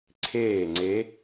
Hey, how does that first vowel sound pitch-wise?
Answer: falling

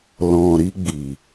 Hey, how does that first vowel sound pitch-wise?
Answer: low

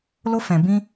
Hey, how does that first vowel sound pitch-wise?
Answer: high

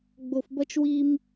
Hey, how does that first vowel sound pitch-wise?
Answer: low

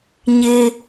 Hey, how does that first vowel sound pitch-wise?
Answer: high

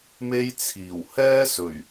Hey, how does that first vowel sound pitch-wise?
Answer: high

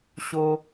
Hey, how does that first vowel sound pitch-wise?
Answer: high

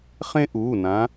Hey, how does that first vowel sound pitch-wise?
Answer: high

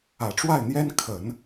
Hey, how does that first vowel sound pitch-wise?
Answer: low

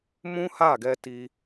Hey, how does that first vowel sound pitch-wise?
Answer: high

